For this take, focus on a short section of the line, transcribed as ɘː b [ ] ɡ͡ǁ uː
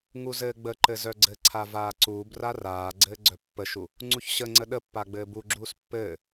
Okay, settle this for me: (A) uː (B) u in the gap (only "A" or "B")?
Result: B